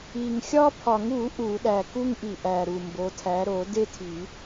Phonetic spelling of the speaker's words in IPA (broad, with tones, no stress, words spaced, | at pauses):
i˨˩ŋxʲɒ˦pʰɒ˨˩˦ŋ u˨˩˦ ʔu˨˩˦ɗæ˨˩ ku˦ŋʔi˨˩ʔæ˨˩ɾu˨˩ mbo˨˥tʰæ˨˥ ɾo˨˩˦ de˦tʰi˨˩˦